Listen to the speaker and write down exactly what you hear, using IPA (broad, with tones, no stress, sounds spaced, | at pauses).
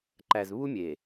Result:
ǃ æ˨ z β u˦ mʲ e˨